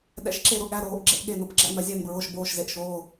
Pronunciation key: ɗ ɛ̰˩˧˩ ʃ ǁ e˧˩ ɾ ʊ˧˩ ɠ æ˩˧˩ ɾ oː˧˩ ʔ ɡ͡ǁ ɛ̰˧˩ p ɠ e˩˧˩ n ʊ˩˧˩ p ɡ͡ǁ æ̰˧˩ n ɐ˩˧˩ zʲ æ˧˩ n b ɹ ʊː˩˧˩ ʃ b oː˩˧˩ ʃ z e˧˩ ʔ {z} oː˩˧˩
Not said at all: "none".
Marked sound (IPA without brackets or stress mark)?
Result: ʃ